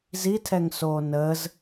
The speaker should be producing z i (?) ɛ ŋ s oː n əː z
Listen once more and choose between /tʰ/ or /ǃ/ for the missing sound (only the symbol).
tʰ